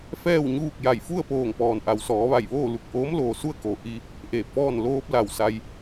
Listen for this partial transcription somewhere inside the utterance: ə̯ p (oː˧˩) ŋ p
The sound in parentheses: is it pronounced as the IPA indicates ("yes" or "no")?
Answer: yes